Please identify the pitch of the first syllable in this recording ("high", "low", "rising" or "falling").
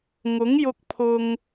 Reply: rising